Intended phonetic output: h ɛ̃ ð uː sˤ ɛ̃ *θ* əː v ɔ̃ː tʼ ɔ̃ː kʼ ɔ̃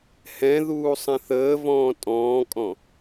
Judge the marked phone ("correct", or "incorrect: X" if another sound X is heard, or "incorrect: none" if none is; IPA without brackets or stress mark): correct